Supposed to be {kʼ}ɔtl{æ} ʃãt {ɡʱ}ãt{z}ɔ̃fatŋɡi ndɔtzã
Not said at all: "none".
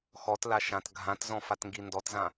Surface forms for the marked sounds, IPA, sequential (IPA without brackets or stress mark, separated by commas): x, a, ɡʱ, z